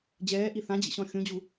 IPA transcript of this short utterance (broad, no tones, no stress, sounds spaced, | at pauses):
d͡ʑ ɛː ʔ i θ ã d͡ʑ ḭ ɕ ɔ̃ xʲ ũ d͡ʑ u